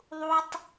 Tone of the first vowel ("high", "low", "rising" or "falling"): high